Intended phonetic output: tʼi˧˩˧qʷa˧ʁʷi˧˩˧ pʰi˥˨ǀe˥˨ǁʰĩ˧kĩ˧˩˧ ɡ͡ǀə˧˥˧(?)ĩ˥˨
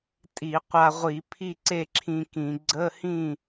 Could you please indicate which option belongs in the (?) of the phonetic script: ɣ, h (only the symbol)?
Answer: h